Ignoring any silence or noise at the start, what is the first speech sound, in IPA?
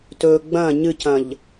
t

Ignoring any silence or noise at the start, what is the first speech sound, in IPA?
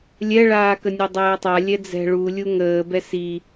lʲ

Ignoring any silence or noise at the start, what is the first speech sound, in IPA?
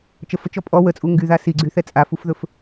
t͡ʃ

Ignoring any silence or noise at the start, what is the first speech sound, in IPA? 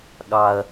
ɠ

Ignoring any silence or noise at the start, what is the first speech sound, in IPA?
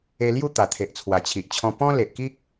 e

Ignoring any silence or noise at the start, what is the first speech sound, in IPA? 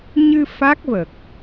ɲ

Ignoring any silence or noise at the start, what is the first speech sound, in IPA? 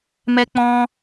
m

